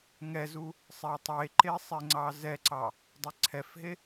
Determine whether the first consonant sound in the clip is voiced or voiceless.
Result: voiced